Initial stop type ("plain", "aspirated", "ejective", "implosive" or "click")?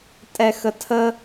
ejective